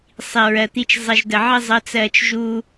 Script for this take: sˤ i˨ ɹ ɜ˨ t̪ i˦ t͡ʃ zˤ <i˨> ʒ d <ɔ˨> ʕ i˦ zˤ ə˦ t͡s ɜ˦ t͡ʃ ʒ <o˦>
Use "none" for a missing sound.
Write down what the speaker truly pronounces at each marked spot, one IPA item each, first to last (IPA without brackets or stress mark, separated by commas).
i˨, ə˨, u˦